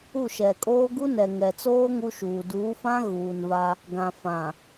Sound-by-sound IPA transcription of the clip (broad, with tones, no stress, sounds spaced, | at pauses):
u˦˨ ʃ ɛ˨ kʼ oː˦ ɡ u˦ n ɛ˨ ŋ ɛ˨ t͡s oː˦ ŋ u˦ ʃ uː˨ d uː˨˦ f ã˦ ɣ uː˨ n v a˦ | ɡ ã˨ f ã˨